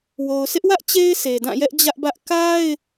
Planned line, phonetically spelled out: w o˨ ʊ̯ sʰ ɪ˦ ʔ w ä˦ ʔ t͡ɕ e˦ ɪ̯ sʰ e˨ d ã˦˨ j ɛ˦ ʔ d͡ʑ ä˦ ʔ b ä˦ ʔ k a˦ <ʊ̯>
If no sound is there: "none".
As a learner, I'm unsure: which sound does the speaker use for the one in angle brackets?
ɪ̯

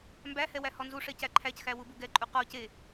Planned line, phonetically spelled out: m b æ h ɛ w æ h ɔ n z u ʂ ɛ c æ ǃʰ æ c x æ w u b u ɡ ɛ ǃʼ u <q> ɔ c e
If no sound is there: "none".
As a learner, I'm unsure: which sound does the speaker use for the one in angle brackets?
q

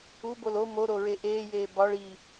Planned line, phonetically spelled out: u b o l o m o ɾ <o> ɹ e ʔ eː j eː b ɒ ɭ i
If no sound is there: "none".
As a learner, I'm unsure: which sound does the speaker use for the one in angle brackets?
o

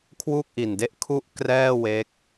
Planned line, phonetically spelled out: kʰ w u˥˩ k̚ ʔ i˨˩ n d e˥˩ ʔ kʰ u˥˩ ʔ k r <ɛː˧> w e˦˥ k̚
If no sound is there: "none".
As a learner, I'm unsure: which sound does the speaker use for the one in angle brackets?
ɛː˥˩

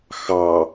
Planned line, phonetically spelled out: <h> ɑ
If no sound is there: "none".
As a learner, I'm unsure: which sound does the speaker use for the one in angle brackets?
x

